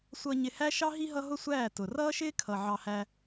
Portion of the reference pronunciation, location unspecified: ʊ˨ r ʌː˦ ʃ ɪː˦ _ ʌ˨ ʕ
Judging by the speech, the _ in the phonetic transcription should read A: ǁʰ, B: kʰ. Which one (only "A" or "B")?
B